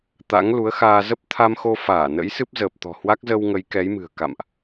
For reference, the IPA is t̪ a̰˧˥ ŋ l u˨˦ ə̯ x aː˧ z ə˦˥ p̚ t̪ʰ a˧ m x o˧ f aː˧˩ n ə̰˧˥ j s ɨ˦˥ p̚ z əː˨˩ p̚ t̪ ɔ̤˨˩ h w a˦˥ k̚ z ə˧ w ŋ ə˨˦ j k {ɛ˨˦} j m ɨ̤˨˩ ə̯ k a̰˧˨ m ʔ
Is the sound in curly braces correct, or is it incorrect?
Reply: correct